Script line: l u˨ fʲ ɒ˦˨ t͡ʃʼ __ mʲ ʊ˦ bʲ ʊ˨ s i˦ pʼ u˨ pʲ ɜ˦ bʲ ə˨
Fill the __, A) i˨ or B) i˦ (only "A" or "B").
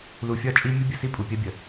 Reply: B